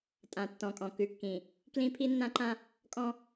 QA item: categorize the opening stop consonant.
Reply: ejective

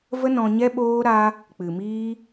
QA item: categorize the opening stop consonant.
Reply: implosive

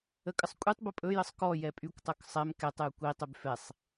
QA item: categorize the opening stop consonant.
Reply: ejective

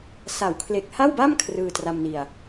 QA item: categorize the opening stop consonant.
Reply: aspirated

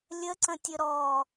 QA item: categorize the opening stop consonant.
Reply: click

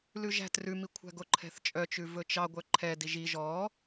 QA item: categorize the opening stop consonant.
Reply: plain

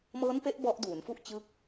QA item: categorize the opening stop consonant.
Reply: plain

